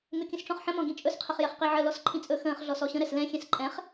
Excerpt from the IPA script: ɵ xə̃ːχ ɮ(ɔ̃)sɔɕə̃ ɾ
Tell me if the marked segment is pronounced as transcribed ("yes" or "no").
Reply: no